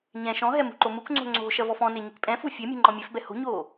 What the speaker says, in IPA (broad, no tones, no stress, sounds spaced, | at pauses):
ɲ ɛ̃ ʃ ɔ̃ ɦ ɛ m ṳ ǃ o m u k ŋ͡ǀ o̤ ŋ͡ǀ o̤ ʃ ɐ v ɔ f ɔ̃ n e ɲ i k pʼ ɛ̃ f u fʲ e mʲ ṳ ŋ͡ǃ ɔ̃ mʲ ɛ f b ɛ h o̤ ɲ oː